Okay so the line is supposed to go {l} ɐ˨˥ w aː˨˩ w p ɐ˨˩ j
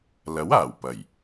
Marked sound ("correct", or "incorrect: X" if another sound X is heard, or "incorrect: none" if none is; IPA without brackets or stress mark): correct